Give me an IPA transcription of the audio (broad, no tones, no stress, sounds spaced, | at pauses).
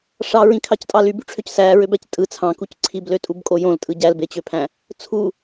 ʂ ɑ ɹ ĩ kʰ ɑ c tʼ ɑ l y b y ʈ͡ʂʰ ø c s æː ɹ ø b æ c tʼ ɯ t͡sʰ ɑ̃ k u c ǀʰ i b l ø tʼ u b kʼ o j õ l tʼ ɯ ɟ æ l b e t͡ɕ ø pʰ æ̃ | t͡sʰ u